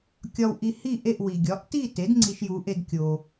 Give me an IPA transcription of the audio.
kʲɒ˧wʔi˧ hi˥˨ʔe˥˨ʔwi˩ ɡʲɒ˩˥ʔti˥˨te˩˥d ŋ͡ǀi˧ʃju˩˥ʔe˧d kʲo˩

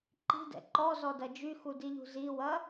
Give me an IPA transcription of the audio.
ǃi̤dɛ̰ ǃɔzɔdɐ d͡ʒyxudiʎṳ ziwɐ

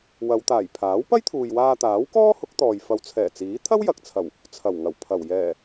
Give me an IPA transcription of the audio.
wɐ˨˧wt̪aː˨˩j pʰaː˨˥wpɐ˥jt̪ʰuː˨j waː˧t̪aː˨˥wkɔː˥ hʊ˨˥k̚t̪ɔː˨j fɐ˨˧wt͡sʰɛː˨˩t͡siː˨˥ t̪ʰɐ˥wjɐ˨k̚t͡sʰɐ˨˩w | t͡sʰɐ˨˩wŋɐ˨˩wpʰɐ˨˩w jɛː˨˩

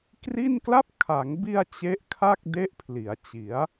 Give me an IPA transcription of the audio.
kri˥˩n kla˦˥p̚kʰa˩˦ŋbi˧a̯ t͡ɕe˦˥ʔkʰa˥˩k̚ de˦˥ʔpʰli˩˦a̯t͡ɕi˩˦a̯

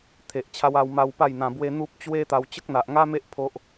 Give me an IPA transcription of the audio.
t̪ʰe˨ʔt͡ɕʰa˧w a˧wma˧w pa˥˧jn̪ã˧bwe˦ n̪u˦p̚ t͡ɕwe˦t̪a˧w t͡ɕə˦k̚n̪a˨ʔŋa˦me˦ʔ pʰo˦ʔ

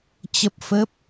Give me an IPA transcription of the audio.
t͡ɕə˦˥p̚fə˦˥p̚

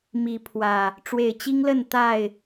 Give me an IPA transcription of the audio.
mi˨˦ pʰwä˨˩ | ʈ͡ʂwe˨˩ɪ̯t͡ɕi˦ŋlə˥˨n t̪a˥˨ɪ̯

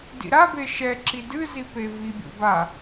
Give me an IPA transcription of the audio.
dḭɾabe ʃɛ ǁidɨzi pevibʲo̰ ba

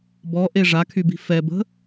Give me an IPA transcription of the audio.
bɔʔe ʐakʰybi̤ fɛbə̤

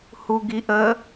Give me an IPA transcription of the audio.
huɡiʔə

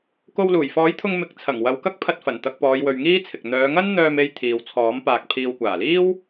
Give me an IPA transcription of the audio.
ko˧wluː˨˩jfɔː˨˥jt̪ʰʊ˧ŋ mɪ˨k̚t͡sʰɐ˨˩ŋ wɐ˨˧wkɐ˥k̚ pʰɐ˧t̚fɐ˨˩n t̪ɐ˧k̚pɔː˨˧jwɵ˨ɥ ŋiː˥t͡sʰɪ˨k̚ n̪œː˨˧ŋɐ˥n n̪œː˧me˧j t̪ʰiː˨wt͡sʰɔː˨˥m paː˨k̚ pʰiː˨wkʷaː˨˩liː˥w

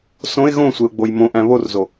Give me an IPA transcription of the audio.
sõɪ̯ ɣõsʷeʊ̯ɡ͡boj mõʔæ̃ βorzo

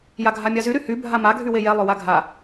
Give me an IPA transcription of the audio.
jaɡʱamʲazy ɾyhy bʱama ɡʱywejɛ lˠʏwaɡʱa

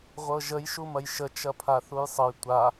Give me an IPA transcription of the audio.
ʁʷɤʒəj ʃumɐjʃə t͡ʃɐpʰaθujsˤəj tʷa

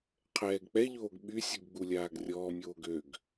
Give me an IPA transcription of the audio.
qʰɛːɡk͡pɛʎoːɡ ɓysʲuɡ ɡ͡bulʲaːɡrʲɔːmʲoːɡ øɡ

